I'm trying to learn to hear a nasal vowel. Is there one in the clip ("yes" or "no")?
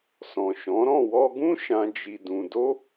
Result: yes